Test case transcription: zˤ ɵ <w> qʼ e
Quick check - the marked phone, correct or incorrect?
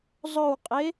correct